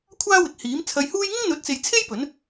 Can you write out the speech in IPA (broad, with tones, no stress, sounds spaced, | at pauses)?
kʷʰ aː˥ w ɪ˨ k̚ h iː˨˥ m t͡sʰ ɐ˧ j h uː˥ j ŋ ɪ˥ ŋ n̪ ɵ˨˥ t̚ t͡s e˨ j t͡sʰ e˥ j p ɵ˨˥ n